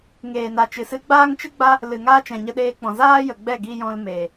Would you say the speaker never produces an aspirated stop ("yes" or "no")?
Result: yes